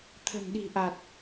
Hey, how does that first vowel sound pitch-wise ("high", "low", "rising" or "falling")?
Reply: low